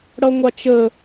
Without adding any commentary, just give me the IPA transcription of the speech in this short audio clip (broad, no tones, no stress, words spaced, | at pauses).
ɽʌŋʷɑt͡ʃə